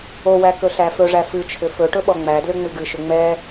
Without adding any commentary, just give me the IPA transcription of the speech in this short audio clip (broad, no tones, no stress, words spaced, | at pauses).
owæ kɵɬæfɵʐæ fɨt͡ʃʰʏ fɵʈɵ ɓɔŋ͡mædlʏ ŋ͡mɨɡɨʃʏ ŋ͡mɛ